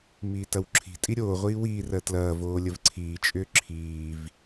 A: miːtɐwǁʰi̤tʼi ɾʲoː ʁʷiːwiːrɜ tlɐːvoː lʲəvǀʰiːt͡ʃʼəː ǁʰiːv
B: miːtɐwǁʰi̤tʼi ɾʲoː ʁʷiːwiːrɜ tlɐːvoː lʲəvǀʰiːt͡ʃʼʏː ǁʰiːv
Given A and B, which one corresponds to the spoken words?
B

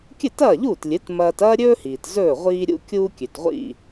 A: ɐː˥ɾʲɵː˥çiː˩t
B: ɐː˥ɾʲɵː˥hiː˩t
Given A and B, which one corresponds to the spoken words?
B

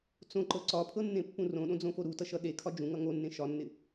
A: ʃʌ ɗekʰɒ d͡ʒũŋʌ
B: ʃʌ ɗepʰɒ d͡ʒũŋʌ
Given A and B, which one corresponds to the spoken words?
A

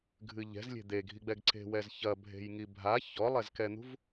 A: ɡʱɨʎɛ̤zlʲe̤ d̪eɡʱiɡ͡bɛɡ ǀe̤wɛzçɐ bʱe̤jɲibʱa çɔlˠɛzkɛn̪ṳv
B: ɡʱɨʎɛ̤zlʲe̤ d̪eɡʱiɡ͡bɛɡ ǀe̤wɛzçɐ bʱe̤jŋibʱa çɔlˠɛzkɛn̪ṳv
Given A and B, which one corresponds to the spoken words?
B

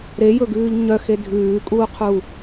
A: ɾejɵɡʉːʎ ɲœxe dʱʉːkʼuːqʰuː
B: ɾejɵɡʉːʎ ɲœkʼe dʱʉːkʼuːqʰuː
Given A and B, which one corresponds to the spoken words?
A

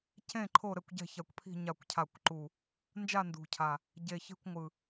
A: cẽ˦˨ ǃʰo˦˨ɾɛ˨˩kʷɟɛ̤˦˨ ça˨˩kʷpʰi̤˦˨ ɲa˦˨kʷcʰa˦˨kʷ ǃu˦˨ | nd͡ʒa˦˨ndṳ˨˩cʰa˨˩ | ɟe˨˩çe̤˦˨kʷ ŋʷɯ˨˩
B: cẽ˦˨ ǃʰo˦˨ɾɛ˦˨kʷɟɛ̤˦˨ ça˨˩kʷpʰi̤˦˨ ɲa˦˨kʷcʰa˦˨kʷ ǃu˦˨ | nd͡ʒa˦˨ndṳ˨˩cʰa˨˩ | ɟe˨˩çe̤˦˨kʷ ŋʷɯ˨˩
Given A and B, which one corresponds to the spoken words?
B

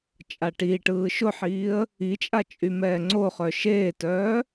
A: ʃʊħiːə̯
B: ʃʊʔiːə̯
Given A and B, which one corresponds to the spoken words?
A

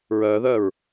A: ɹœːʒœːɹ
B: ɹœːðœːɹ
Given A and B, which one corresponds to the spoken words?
B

